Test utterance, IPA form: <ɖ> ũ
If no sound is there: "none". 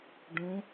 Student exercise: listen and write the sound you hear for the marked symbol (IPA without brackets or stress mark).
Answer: ɖ